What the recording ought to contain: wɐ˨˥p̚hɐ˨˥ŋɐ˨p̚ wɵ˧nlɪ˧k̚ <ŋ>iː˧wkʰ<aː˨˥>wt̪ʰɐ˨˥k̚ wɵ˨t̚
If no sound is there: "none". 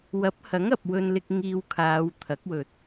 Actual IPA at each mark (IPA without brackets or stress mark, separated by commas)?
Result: ŋ, aː˨˧